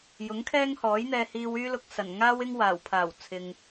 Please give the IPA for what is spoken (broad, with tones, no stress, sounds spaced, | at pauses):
j ʊ˨˥ ŋ kʰ ɛː˥ ŋ h ɔː˨˥ j n̪ ɛː˧ h iː˧ w yː˥ l ʊ˧ k̚ s ɐ˨˩ n ŋ aː˥ w ɪ˥ ŋ w aː˨˩ w pʰ aː˨˩ w t͡sʰ ɪ˨ ŋ